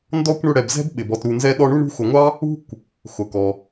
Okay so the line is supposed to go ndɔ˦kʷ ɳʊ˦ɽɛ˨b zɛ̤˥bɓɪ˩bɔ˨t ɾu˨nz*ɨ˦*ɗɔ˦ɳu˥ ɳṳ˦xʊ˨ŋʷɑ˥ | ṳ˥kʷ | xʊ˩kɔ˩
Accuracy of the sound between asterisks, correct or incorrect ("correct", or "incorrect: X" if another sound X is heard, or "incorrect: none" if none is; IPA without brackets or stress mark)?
incorrect: ɛ˦